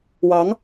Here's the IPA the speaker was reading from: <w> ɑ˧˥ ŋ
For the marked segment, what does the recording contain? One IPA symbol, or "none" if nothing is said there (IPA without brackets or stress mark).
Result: w